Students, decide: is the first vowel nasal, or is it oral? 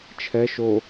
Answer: oral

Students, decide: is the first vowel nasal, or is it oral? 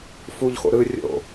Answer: oral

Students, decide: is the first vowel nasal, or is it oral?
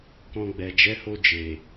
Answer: nasal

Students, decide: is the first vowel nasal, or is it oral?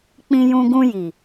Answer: nasal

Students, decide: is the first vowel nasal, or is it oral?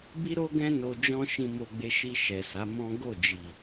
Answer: oral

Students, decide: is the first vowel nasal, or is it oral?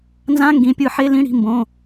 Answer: nasal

